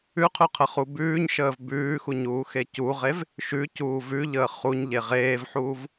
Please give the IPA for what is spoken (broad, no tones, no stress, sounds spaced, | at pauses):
ʉ qʰ ʉ qʰ ə χ u b ʉː ɲ ʃ əː v b ʉː x u ɲ uː x e c u ʁ e v | ʃ ʉ c uː v ʉ ʎ əː χ u ɲ ʎ e ʁ eː v ħ uː v